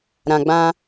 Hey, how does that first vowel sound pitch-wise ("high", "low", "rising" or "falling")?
low